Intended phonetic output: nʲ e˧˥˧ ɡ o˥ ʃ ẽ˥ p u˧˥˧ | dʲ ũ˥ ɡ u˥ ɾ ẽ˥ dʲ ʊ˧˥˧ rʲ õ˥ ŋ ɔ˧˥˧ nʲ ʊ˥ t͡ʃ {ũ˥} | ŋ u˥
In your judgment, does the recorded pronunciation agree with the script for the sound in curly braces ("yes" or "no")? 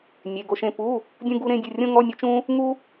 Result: yes